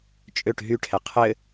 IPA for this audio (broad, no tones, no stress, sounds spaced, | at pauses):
t͡ʃʼ ø ʈ ɦ y ʈʰ ɛ qʰ ɘ